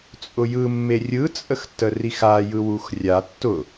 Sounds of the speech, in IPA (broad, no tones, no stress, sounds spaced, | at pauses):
t͡sʼ ʊ j ɯ mː e rʲ ɯ t͡sʼ ə x tː ə r i x a j ɯ w u x rʲ a tː ʊ